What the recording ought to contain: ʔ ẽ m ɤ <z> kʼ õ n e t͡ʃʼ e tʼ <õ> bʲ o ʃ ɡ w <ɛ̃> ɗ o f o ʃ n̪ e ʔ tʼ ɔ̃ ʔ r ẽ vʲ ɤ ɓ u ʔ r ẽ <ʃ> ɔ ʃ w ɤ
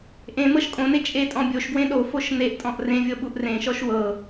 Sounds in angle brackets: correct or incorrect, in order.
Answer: incorrect: ʃ, incorrect: ɔ̃, incorrect: ẽ, correct

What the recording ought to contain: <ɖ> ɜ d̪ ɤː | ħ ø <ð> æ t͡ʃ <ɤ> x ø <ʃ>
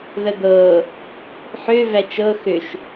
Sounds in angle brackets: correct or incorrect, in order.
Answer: incorrect: ð, incorrect: v, correct, correct

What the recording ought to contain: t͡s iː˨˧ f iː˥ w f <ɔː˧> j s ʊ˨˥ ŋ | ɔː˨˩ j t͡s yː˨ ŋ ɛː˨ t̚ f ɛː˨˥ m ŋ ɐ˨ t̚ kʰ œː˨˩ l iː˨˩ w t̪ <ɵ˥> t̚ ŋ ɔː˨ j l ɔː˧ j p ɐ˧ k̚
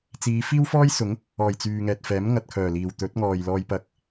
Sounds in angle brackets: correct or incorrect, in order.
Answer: incorrect: ɔː˥, incorrect: ɵ˨˥

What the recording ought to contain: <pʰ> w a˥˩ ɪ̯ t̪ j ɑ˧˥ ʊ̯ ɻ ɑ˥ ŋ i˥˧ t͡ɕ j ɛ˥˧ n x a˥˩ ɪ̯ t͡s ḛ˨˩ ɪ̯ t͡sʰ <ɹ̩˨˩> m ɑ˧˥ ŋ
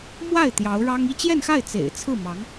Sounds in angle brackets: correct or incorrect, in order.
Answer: incorrect: m, incorrect: ɹ̩˥˩

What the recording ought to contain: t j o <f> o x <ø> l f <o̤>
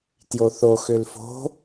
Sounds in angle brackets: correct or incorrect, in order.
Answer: incorrect: θ, correct, correct

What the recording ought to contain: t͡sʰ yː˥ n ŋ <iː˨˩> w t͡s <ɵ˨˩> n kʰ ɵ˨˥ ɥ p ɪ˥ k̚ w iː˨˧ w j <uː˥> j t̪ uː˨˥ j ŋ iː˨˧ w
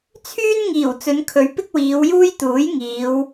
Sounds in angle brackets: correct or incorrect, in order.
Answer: correct, incorrect: ɵ˨˧, correct

